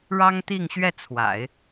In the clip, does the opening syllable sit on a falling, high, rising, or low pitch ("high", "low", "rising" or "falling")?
high